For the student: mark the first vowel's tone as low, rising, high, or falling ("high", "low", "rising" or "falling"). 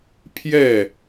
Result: falling